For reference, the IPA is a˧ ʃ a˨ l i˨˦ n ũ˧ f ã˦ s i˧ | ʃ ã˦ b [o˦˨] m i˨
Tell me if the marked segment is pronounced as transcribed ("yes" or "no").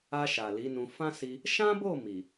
yes